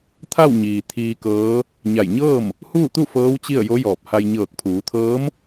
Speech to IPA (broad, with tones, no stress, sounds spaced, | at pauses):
t̪ʰ a˥˨ w ɲ iː˩ t̪ʰ iː˧ k ɤː˧˥ | ɲ a˧˩ j ɲ ɤː˥˨ m | h uː˥˨ t̪ u˥˨ f ɤː˧˥ w t͡ɕ i˥˨ ə̯ j o˧˥ j ɔː˧˩ p̚ h a˧ j ɲ ɤː˧˩ k̚ pʰ uː˩˧ t̪ʰ ɤː˧˥ m